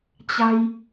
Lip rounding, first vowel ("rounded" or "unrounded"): unrounded